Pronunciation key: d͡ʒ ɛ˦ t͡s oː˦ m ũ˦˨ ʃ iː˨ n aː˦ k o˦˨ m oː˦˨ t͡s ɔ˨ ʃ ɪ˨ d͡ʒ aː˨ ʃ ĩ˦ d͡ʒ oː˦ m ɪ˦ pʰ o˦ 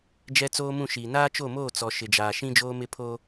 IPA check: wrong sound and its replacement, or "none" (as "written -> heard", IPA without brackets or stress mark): k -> t͡ʃ